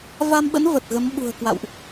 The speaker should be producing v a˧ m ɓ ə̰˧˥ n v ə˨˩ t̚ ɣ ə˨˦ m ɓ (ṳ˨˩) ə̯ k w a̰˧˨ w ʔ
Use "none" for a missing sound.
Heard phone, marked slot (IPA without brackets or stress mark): ṳ˨˩